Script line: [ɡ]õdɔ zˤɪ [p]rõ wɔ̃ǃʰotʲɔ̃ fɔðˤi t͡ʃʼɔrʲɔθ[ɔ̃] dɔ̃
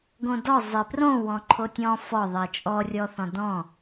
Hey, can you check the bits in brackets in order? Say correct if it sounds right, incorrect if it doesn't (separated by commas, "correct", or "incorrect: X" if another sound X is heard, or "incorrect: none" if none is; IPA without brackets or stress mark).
correct, correct, correct